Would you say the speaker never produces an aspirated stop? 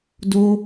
yes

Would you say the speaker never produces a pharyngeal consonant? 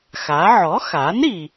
no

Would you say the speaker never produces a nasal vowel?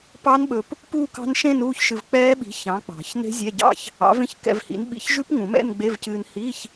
no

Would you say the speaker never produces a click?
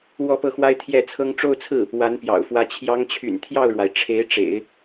yes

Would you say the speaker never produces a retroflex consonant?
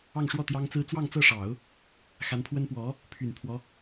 no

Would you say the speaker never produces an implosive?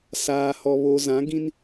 yes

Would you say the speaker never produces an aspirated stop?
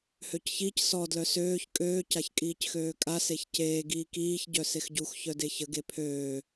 no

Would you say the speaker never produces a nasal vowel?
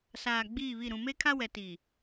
no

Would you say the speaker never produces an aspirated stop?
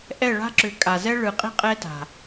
yes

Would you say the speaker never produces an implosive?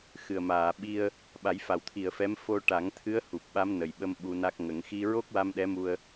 no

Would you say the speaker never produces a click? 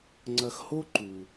no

